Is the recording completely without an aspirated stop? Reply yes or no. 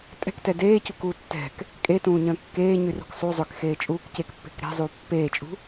yes